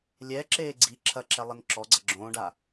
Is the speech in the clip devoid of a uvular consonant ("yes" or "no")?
yes